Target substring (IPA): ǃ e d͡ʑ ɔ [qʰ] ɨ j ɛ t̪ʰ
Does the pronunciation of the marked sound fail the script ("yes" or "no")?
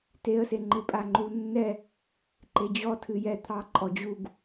yes